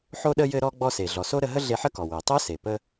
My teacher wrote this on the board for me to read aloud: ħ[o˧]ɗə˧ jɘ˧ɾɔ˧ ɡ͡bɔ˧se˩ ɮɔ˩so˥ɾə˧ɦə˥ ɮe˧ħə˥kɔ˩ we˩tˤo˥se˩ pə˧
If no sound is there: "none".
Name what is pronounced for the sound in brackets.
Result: o˧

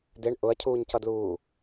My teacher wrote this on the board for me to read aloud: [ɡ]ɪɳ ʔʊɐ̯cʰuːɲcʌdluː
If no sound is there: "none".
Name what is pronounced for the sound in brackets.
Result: d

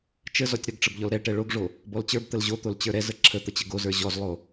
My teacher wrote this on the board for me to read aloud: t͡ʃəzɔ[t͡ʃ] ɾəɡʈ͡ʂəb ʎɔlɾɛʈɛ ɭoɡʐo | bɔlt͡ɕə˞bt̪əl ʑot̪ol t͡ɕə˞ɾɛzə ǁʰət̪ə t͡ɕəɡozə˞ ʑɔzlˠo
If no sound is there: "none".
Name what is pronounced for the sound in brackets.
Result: tʲ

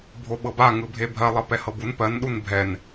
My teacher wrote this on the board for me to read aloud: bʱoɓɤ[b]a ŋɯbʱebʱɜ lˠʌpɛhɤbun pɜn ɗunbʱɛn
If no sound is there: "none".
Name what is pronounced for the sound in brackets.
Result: b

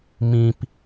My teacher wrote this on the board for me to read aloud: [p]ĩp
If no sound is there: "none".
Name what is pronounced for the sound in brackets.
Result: m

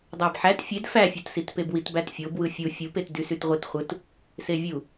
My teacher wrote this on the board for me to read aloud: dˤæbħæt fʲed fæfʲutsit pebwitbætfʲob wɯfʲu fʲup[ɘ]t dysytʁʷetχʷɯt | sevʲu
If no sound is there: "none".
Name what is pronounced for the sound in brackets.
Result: e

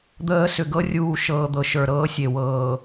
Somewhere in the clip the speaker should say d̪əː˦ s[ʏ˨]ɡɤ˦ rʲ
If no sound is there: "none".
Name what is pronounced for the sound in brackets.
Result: ʏ˨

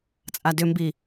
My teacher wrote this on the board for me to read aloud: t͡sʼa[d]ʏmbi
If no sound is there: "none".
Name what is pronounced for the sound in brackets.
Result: d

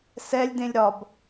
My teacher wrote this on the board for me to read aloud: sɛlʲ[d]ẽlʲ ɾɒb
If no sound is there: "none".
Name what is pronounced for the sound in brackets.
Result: d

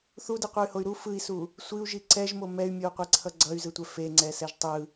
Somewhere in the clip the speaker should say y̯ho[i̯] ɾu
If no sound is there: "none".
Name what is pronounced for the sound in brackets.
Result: y̯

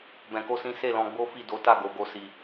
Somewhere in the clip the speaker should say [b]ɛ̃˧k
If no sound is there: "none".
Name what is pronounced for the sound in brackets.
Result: b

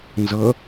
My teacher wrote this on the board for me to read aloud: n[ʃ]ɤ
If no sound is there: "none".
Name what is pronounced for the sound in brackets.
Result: z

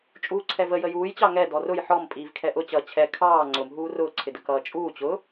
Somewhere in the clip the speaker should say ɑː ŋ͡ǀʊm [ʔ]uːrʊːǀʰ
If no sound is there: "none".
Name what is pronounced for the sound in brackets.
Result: ɦ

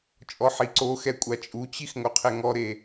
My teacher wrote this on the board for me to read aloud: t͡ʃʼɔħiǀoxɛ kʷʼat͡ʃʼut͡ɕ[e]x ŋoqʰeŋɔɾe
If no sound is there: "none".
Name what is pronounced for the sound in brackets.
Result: i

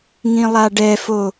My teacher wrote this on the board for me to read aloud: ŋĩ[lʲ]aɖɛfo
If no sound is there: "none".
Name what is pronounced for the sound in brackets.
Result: lˠ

